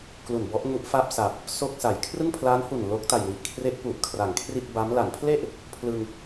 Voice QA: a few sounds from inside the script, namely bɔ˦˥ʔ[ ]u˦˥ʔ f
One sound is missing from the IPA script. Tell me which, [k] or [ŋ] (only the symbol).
ŋ